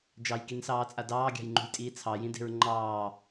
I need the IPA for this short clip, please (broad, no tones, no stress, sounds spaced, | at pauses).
d͡ʒ ɑ j k i n s ɑː t͡sʼ a d ɑː ɡʲ ɑ̤ j ŋ͡ǃ ṳ j tʼ iː t͡sʰ ɑ j ĩ d e̤ ɹ ŋ͡ǃ ɑː